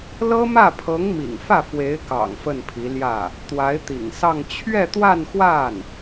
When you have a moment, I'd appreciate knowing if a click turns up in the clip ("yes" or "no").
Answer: no